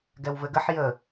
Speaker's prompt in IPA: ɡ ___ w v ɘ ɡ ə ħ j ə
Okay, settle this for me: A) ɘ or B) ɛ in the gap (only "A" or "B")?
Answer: B